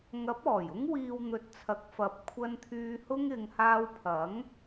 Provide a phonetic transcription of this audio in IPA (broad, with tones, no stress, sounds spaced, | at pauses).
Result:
ŋ ɐ˨˥ p̚ ɔː˨˩ j ʊ˥ ŋ w iː˧ w n̪ ɵ˨˥ t̚ t͡sʰ ɐ˨˥ k̚ f ɐ˨ p̚ kʷʰ ɐ˧ n t̪ʰ yː˧ h ʊ˥ ŋ ɪ˨˧ ŋ h aː˧ w pʰ ɐ˨˥ ŋ